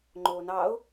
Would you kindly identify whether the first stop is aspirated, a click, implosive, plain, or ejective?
click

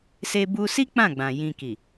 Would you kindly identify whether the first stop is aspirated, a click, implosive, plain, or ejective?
plain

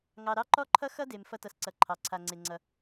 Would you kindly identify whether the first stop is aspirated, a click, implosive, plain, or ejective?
click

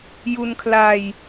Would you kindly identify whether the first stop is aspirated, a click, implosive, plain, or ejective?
aspirated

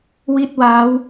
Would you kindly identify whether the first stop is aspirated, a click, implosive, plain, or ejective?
plain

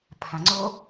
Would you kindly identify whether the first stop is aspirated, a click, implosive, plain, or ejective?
aspirated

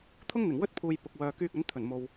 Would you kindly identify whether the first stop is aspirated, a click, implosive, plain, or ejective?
aspirated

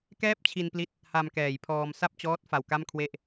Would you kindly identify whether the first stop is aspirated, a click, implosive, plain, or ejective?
plain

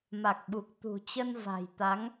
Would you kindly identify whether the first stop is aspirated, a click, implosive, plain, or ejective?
plain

